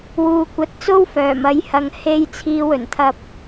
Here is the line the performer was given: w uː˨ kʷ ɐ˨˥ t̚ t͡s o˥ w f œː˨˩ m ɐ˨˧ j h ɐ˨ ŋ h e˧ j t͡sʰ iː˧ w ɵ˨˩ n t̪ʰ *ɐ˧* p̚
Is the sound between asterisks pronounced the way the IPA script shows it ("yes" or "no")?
yes